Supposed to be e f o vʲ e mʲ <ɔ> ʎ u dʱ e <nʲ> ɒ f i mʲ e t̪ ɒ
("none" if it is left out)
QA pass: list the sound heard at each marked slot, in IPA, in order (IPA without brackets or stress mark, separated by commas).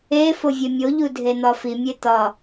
o, n̪